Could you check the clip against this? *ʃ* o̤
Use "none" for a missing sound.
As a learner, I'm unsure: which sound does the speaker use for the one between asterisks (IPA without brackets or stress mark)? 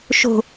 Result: ʃ